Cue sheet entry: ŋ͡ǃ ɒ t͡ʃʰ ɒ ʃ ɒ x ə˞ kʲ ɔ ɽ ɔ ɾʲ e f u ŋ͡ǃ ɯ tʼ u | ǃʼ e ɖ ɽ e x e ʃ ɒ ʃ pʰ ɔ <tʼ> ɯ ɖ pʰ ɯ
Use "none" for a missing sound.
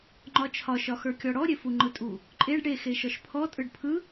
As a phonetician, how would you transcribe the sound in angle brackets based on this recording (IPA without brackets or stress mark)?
tʼ